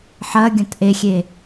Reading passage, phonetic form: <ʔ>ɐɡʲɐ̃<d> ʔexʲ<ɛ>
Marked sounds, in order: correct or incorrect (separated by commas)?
incorrect, incorrect, incorrect